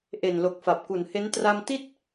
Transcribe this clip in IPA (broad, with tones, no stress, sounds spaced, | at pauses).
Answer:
ʔ e˨˩ n l o˨˩ k̚ f a˨˩ p̚ k u˨˩ n h e˦˥ n t r a˧ m t i˥˩ t̚